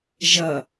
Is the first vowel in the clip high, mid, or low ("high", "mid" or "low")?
mid